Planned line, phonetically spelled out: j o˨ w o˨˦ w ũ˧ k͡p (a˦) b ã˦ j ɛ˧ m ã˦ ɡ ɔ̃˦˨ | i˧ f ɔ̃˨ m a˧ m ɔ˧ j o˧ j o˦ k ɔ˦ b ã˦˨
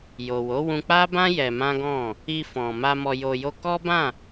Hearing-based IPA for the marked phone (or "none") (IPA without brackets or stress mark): a˦